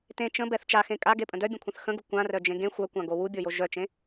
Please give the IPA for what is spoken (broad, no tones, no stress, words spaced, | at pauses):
tẽ t͡ʃə̃bɛθ t͡ʃaxẽ kʼaɡepʼə̃ dœbʲə̃kʷʰə̃θ xə̃ɡu kʷãrœd͡ʒẽ ɡẽ xʷœkʷãɡo wubʲojo ʒœt͡ʃẽ